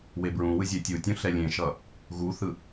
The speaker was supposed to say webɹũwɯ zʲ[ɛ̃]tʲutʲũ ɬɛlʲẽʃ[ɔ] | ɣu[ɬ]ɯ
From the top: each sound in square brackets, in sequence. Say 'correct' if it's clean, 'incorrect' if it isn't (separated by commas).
incorrect, incorrect, incorrect